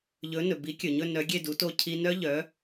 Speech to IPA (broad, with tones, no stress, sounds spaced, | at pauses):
ʎ ɵ˨˥ n ɵ˩ b i˨˥ kʲ ɵ˩ ɲ ɵ˥˧ n œ˨˥ ɡʲ e˥˧ d u˨˥ t o˥˧ cʰ i˥ n œ˥ ʎ œ˨˥